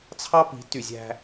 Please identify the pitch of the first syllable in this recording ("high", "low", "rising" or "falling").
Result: high